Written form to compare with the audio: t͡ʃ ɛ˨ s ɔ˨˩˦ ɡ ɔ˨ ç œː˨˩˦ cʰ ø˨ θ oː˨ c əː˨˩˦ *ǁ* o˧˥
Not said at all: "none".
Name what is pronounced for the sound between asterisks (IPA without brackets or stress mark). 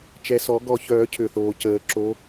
ǁ